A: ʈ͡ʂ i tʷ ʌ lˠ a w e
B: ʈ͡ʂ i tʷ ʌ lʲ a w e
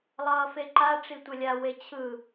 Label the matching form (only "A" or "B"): B